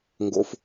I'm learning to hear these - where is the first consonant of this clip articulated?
velum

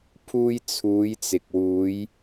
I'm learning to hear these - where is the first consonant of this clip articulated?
lips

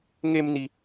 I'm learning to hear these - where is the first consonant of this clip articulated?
velum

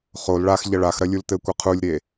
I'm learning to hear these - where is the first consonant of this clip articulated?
uvula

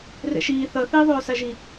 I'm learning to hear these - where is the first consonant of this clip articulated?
tongue tip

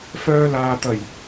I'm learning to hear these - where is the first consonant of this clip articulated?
lips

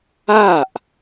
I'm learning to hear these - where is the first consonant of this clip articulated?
throat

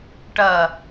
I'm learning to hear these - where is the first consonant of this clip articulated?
retroflex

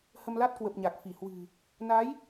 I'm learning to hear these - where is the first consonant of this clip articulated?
throat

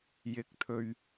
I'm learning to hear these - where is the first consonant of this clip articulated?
palate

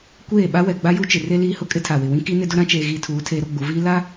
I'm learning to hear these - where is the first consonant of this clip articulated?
velum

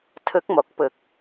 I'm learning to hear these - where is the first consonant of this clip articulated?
tongue tip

